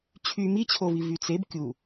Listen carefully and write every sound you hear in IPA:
t͡ɕʰ y m i t͡ɕʰ o v i v y t͡s e b kʲ u

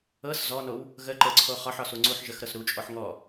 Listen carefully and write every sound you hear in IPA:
ɤ s z ɔ n o w | ɣ ə ǃ ə ǀʰ o χ ɒ ħ ɒ s u ŋ͡ǀ u ħ ʒ ə x ɾ ɤ s ɾ u t͡ʃʼ ɔ ħ ŋ ɔ

